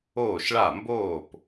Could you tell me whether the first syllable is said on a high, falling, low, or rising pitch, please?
falling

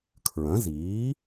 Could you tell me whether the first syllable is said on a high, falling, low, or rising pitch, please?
rising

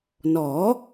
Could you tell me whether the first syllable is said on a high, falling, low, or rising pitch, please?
rising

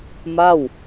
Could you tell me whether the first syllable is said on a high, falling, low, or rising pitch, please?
falling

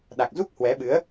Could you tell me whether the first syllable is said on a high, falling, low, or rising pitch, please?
low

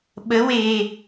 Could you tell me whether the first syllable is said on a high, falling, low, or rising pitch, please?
rising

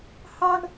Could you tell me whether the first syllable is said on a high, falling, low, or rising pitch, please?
high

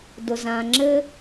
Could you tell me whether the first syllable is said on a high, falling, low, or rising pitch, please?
low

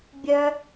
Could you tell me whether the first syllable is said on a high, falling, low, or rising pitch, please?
high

